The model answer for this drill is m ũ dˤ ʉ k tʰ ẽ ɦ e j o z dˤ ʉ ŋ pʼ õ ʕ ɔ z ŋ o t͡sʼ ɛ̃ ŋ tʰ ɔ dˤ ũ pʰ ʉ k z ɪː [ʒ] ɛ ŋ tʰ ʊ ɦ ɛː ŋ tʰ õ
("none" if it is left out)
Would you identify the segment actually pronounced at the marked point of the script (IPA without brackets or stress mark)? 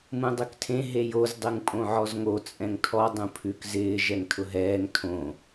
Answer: ʒ